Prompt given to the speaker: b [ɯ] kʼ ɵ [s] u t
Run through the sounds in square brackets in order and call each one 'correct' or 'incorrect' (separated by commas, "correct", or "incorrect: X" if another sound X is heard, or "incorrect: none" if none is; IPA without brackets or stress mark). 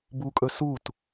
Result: incorrect: u, correct